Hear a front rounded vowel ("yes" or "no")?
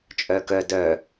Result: yes